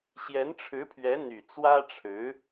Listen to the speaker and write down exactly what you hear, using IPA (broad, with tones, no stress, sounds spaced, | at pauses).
ɕ j ɛ˧˥ n ʈ͡ʂʰ ɻ̩˧˥ pʰ ɥ ɛ˧˥ n̪ y˨˩ t͡s w ä˥ ʈ͡ʂʰ ɻ̩˧˥